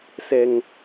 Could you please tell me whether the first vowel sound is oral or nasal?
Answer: oral